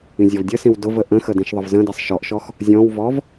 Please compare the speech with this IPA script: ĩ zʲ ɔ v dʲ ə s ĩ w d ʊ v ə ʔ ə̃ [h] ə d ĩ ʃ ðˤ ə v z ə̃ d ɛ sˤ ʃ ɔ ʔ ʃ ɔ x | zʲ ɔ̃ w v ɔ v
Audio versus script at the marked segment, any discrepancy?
yes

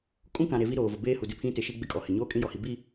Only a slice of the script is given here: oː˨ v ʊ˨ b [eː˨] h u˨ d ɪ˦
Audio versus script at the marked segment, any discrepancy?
yes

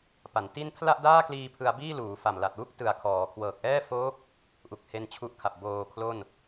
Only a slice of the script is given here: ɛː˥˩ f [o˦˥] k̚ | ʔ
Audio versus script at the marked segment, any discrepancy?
yes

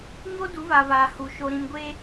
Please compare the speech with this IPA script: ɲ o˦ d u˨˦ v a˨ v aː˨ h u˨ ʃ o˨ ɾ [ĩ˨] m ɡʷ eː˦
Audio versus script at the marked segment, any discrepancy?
no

